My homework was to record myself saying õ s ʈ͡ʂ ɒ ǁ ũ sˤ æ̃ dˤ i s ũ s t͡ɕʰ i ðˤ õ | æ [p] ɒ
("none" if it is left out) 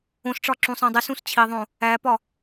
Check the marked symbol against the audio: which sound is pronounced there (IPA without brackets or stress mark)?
p